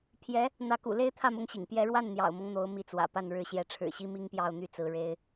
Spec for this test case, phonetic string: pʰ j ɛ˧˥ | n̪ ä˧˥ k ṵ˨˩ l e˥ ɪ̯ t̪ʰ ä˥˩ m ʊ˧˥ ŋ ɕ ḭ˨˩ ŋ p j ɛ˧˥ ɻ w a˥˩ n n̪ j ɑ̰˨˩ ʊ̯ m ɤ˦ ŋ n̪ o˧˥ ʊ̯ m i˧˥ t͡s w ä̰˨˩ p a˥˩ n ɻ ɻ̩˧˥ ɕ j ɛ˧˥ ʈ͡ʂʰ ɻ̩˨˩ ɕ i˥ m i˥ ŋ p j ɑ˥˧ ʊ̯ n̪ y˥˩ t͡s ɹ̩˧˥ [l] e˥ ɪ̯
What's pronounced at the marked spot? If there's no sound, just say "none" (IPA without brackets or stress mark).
ɻ